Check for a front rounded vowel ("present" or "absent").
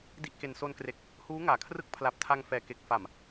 absent